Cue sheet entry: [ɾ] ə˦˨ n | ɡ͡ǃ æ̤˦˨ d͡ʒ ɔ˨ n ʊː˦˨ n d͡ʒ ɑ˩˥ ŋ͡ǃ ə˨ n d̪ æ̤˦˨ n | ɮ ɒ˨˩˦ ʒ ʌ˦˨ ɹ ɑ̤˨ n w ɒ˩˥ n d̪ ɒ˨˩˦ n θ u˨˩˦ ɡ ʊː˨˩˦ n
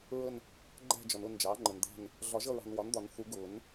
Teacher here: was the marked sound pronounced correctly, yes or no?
no